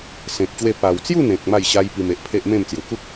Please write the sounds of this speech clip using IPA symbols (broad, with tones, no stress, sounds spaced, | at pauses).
s ẽ˨ k̚ ɕ w e˧ p a˨˩ w t͡s j u˥˧ n̪ ẽ˨ k̚ m a˥˧ j ɕ a˦ j p i˧ m e˨ ʔ pʰ e˦ ʔ m ẽ˥˧ m t͡s j u˨˩ k u˦ k̚